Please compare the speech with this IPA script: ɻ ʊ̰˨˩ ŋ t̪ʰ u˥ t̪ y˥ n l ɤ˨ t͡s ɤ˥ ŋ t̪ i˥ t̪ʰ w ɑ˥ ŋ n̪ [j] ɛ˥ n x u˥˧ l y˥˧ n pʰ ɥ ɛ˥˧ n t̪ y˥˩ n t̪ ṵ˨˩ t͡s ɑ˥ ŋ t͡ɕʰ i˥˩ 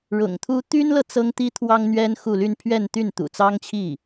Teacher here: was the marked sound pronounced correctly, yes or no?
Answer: no